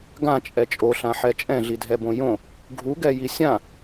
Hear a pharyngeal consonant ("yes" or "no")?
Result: yes